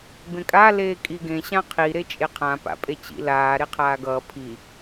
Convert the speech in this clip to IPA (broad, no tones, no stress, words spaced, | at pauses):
bẽkʼa leːkʼiɡẽ ɕãqʰi ɾet͡ʃʼeqʰã pa̰pʼet͡ɕḭ laː ɾeqʰaːɡʌː pʰi